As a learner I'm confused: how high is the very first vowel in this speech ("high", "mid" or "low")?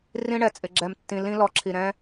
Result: high